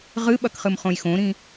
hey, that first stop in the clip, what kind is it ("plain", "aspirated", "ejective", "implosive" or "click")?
implosive